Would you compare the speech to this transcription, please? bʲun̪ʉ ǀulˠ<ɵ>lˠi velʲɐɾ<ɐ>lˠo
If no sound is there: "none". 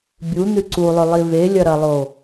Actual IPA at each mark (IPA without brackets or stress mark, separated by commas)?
ɵ, ɐ